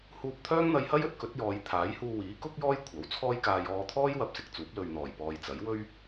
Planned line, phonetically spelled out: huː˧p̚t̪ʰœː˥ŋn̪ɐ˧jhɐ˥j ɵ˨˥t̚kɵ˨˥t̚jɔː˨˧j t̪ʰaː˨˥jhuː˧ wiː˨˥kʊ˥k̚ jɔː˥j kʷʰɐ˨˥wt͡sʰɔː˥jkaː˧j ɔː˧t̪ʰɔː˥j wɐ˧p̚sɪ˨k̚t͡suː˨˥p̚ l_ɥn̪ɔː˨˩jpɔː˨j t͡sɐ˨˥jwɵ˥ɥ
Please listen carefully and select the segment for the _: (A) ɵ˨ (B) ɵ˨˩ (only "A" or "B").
A